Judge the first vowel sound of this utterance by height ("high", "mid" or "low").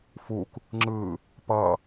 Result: high